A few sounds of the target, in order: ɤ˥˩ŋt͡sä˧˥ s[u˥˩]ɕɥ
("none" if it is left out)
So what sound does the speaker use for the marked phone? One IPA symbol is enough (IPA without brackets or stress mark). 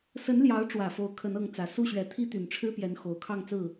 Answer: u˥˩